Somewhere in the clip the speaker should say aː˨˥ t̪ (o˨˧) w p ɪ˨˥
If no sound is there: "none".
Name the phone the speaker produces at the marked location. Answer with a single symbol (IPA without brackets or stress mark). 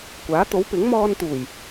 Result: o˨˥